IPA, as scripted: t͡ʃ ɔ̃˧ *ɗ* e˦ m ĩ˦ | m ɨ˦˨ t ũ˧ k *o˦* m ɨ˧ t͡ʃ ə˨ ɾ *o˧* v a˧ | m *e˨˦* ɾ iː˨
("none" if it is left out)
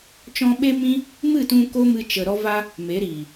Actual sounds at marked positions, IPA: ɓ, o˦, ɔ˧, e˨˦

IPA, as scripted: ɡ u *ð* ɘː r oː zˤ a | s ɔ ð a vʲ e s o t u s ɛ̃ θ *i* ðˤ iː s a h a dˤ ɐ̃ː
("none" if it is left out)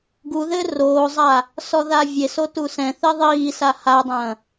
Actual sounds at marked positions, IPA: ð, e

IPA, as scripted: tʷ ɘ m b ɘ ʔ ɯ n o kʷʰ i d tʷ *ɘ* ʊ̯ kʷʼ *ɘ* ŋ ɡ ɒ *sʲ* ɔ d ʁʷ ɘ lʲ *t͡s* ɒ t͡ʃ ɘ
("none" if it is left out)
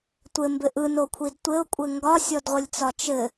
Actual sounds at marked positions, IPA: ɘ, ɘ, sʲ, t͡s

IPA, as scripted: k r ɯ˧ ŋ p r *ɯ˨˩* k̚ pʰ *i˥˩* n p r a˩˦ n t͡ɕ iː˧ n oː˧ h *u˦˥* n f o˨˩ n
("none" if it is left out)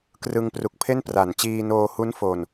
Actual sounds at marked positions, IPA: u˨˩, e˥˩, u˦˥

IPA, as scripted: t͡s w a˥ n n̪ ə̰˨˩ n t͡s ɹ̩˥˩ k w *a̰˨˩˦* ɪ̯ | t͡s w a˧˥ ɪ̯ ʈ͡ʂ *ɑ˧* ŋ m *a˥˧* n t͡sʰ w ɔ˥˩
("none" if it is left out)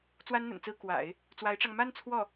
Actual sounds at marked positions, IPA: a̰˨˩˦, ɑ˧, a˥˧

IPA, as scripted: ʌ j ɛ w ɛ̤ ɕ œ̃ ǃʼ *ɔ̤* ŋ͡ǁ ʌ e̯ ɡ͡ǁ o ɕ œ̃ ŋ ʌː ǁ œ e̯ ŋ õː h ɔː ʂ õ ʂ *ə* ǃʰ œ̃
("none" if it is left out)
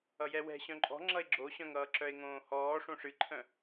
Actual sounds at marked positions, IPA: ɔ̤, ɨ

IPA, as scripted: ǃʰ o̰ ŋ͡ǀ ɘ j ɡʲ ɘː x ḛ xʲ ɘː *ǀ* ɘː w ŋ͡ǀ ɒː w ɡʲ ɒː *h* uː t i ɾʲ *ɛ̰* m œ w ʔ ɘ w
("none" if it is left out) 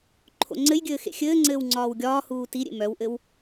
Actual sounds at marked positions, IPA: ŋ͡ǀ, h, ḛ

